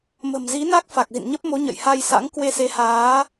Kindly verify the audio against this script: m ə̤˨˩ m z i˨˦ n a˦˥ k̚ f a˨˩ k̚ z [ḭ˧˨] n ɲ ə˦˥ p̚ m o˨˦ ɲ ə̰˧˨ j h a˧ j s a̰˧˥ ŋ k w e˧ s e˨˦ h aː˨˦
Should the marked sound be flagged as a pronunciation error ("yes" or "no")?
no